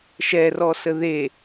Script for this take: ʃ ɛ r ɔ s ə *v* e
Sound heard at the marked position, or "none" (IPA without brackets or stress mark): ð